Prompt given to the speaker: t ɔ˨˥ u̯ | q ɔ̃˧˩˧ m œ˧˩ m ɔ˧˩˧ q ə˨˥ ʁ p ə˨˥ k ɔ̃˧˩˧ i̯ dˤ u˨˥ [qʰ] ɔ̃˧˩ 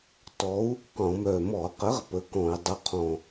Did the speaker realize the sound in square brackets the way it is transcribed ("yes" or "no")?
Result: yes